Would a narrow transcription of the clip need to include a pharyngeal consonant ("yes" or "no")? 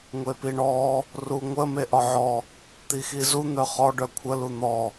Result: yes